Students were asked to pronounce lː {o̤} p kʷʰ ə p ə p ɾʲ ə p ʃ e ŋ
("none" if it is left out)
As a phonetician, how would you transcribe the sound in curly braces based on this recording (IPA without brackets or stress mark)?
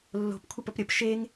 o̤